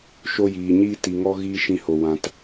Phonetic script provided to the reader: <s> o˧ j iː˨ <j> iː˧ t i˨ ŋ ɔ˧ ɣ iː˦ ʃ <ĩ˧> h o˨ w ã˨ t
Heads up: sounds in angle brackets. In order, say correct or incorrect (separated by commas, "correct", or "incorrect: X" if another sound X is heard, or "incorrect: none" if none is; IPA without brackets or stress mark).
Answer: incorrect: ʃ, incorrect: ɲ, correct